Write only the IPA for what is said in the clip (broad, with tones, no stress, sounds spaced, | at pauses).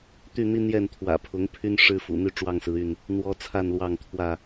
t̪ y˥˨ n̪ i˦ n̪ j ɛ˥˨ n t̪ʰ w ä̰˨˩ pʰ ʊ˨˦ ŋ pʰ y˦ n ʂ ɻ̩˦ f ṵ˨˩ n̪ y˥˨ ʈ͡ʂ w ɑ˥˨ ŋ s ɹ̩˨˦ y˥˨ n | n̪ w ɔ˦ t͡sʰ a˥˨ n l w ɑ˥˨ ŋ t̪ʰ w ä˥˨